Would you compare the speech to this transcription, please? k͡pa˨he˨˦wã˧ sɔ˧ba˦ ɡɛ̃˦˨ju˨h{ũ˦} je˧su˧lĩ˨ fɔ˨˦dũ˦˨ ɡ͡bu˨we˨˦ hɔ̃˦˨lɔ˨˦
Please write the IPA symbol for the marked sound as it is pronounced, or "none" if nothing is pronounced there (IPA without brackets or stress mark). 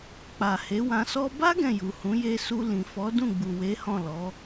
ũ˨˦